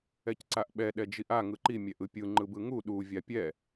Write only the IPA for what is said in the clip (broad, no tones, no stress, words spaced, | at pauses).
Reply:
ɛcǀaʔɓɛ ɗɛd͡ʒiʔa ŋɯǃi mʲɛʔɯpʲɯ ŋ͡ǃɯbɯŋu ɗu vʲapʲɛ